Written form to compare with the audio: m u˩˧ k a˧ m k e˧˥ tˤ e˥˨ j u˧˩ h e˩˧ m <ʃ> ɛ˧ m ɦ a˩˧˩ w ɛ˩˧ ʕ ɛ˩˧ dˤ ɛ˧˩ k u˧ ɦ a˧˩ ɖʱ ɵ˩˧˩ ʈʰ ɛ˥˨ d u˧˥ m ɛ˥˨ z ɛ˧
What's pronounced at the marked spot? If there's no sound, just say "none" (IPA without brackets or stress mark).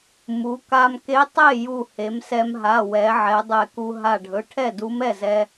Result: s